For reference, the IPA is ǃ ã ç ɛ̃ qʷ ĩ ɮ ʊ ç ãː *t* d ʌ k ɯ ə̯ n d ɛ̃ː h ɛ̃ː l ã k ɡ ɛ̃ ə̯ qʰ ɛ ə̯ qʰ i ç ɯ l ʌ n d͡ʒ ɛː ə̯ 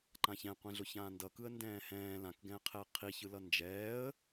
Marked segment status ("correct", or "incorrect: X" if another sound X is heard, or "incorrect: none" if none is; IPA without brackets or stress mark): incorrect: n